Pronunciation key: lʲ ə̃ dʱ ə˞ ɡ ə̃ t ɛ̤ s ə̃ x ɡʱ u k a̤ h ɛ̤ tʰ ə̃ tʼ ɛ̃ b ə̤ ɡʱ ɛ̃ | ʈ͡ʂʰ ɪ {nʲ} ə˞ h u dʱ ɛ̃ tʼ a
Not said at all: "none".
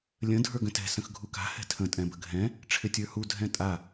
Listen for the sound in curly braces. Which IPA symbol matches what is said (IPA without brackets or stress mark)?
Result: tʲ